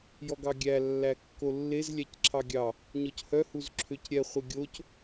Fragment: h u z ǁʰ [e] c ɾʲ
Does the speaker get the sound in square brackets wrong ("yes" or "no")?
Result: yes